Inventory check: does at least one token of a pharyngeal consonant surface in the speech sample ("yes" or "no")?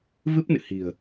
no